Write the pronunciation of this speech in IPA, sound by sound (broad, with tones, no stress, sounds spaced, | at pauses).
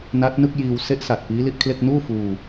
n a˦˥ t̚ n ɯ˥˩ k̚ j iː˧ w s e˦˥ ʔ s a˨˩ t̚ p iː˦˥ l i˥˩ ʔ kʰ l e˥˩ k̚ n uː˥˩ f uː˧